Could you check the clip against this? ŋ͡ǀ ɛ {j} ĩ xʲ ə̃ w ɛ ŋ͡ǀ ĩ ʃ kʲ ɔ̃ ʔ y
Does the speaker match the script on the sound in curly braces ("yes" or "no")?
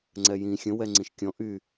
yes